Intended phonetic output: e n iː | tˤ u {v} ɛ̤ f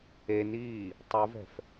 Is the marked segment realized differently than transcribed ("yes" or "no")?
no